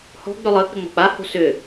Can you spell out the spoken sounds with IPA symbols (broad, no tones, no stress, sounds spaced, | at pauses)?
h ɔ̤ ɡ͡b ʏ lˠ əː k͡p ʏ ŋ͡m ɔ̤ k͡p a h o̤ s ʏ